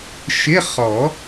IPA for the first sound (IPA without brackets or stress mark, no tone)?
ʃ